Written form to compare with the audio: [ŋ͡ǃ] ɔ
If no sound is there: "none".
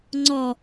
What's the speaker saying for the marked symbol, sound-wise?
ŋ͡ǀ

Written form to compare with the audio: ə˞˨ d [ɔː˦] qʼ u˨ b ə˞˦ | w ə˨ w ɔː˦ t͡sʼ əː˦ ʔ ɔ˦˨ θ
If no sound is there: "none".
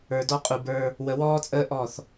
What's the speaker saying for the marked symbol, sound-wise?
ɔ˦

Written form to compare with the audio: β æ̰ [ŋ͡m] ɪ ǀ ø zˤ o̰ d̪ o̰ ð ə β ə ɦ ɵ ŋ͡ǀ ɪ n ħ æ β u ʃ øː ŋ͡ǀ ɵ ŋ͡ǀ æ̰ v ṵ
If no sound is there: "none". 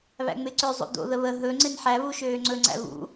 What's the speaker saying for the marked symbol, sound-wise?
ŋ͡m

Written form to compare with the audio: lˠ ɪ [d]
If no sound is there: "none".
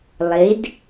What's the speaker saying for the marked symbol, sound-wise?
d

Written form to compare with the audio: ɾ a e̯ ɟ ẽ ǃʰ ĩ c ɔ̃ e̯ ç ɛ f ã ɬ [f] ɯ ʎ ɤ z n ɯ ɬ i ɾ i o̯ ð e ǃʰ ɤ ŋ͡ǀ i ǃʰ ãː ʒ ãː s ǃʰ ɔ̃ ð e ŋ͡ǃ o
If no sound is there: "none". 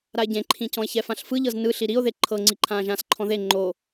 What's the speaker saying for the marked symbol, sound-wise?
f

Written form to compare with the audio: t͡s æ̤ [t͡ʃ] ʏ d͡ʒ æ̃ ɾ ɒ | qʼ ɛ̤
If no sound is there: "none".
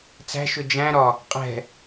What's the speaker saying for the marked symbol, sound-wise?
ʃ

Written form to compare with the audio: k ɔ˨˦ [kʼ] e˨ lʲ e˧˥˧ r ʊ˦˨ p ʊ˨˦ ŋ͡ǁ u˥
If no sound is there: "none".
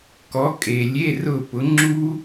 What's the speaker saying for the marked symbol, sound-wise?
kʼ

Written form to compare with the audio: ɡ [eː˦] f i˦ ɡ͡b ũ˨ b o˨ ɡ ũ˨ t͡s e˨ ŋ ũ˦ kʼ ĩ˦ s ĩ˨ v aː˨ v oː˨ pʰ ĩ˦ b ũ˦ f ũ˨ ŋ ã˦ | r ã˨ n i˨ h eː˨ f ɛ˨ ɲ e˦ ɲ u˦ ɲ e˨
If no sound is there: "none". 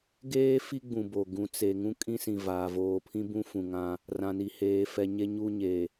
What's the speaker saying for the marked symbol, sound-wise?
eː˦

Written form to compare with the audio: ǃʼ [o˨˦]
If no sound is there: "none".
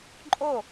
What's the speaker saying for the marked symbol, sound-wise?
o˥˩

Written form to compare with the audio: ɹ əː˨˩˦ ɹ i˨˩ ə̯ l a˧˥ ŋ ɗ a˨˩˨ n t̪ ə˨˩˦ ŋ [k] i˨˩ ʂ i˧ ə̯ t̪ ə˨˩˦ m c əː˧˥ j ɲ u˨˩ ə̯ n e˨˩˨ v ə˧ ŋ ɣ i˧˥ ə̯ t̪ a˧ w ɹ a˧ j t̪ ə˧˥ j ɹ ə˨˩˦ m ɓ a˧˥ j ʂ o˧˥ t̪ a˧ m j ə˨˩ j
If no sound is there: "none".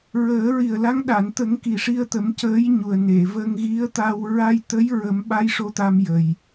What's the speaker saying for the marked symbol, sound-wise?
k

